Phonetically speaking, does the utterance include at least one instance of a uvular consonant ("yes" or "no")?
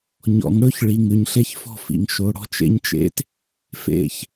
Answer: no